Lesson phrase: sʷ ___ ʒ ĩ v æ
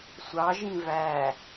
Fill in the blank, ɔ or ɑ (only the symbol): ɑ